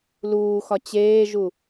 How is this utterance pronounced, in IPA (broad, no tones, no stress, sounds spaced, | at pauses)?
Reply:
l uː x ɒ t͡ɕ eː ʒ u